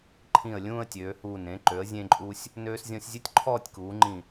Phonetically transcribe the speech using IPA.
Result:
ǃʰĩ˧˩ə̯ lʲũː˥˧ə̯tʲøː˩˧huː˧˩n ẽ˩˧ǃø˩˧ə̯ zʲẽ˥ǃʼu˥sʲ | nøː˧szʲɔ̃˧sʲzʲɵ˥tʲ ǃʰɔː˥˧tʲkuː˩˧ŋ͡ǃĩ˧˩

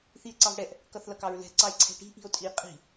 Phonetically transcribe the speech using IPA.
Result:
θie̯ǀɑvɽɛʔ | kʌθlʌkɑɹlɛ̤ ǀɑe̯ǀʰɛ̤ʈi̤ ʔi̤o̯tʼi qʼi̤

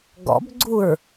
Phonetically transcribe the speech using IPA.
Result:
ɡɔ̰bɡ͡ǀuɹ

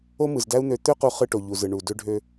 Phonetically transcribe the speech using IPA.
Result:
o˥mɯ˩zdæ˥u̯n̪ø˧ t̪ø˥ qu˧χɯ˧ʈo˩ ʎu˩zɯ˩ ɳu˩ dø˧ɖʱø˧

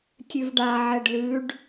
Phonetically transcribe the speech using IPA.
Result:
tʲʉvɖa ʕɛɖlʉɖ

